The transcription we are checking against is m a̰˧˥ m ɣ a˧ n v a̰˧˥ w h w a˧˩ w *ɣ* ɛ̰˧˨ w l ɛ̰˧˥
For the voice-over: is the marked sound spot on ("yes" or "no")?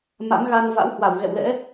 yes